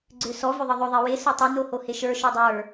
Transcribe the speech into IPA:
ɡ͡ǀ ø s ɔ v ø ðˤ ɤ ðˤ ø ðˤ ɛ w e s o tˤ ɛ n o h o h e ʃ ə˞ ʃ o dˤ ə˞

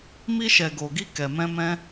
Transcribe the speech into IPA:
m i˧ ʃ ɛ˨ ɡ o˨ ɡ i˧ k ɛ˨ m ɛ̃˧ m ɛ̃˦

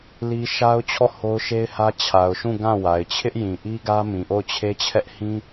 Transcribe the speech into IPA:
l i˦ ʃ a˦ ʊ̯ t͡ɕʰ ɔ˦˨ h o˦ ʊ̯ ʃ e˦ ɪ̯ h ä˦ t͡ɕʰ a˨ ʊ̯ ʃ ũ˦˨ ɡ ã˦˨ w a˨ ɪ̯ t͡ɕʰ ɪ˦ ʔ j ĩ˨ ʔ i˦ ɡ ä˦ m ĩ˨ ʔ o˦˨ ʊ̯ t͡ɕʰ e˦ t͡ɕʰ ɛ˦ ʔ h ĩ˦

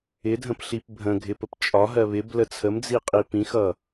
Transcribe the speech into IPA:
ɪ dʱ ə̃ p ɬ i p bʱ ə̃ ɡʱ ɪ p ə p t͡ʃʼ ɒ ɦ ɜ β ɪ b l ə t͡sʰ ə m d͡z i qʼ i p ĩ x ʌ

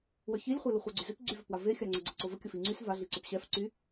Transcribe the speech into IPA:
w œ ç i lʲ χʷ œ l u χʷ œ ɡ͡ǀ y z ø p ɡ͡ǀ y v œ p w a v e xʲ a ŋ͡ǀ œ ɡ͡ǀ ə ǀ o v ə kʲ ə f i ŋ͡ǀ y s v a ɮ i ǀ ø p ɕ ɛ f ǀ y

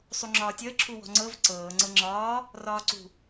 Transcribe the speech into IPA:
sˤ u ŋ͡ǁ ɒː tʲ əː ǁʰ u w ɔ̤ ŋ͡ǀ ɤ v ǀ ɤː ŋ͡ǀ ɤ ŋ͡ǁ ɒː | r ɒː ǀ ṳ

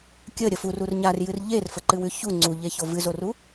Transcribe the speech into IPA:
kʲ ə ɾʲ ə f u r u r ɲ a r j ɨ r ʎ e r f ə ǃ ɨ w ʉ ç u ŋ͡ǀ u ʎ e ç o v ɨ z o r u

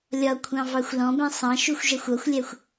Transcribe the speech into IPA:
lʲ ɒ kʷʰ ɑ̃ v ɑ xʷ l ɔ̃ b ɛ̃ sˤ ɑ̃ ʃ u xʷ ʒ æ xʷ ɒ xʷ lʲ æ xʷ

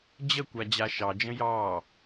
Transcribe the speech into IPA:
d͡ʑ ə kʷ a d͡ʑ a ʃ ɑ d͡ʒ ə̃ j ɑː

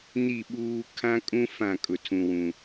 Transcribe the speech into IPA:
n i˦˨ ɓ uː˦ kʰ ã˦ kʼ ũ˦ f ã˦˨ kʼ ʊ˨ tʰ ũ˨ w ũ˨

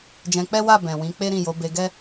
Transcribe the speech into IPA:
d͡ʒ ɛ̃˧ k͡p ɛ˦ w a˦˨ b ɛ̃˨ w ĩ˨˦ k͡p e˦ ɾ ĩ˦˨ j o˨˦ b e˧ ɡ ɛ˦

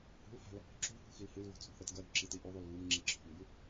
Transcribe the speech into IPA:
h ṳ l h a̤ l | ǁ ṳ h ṳ x i l h ɨ l v o̤ t͡sʼ ṳ θ ɾ ɐ t ɡ ɐ ɾ ṳ ǁ i t i ʔ ʉ ðˤ u l v u m ŋ͡ǁ i ǁʰ o̤ m b ʉ

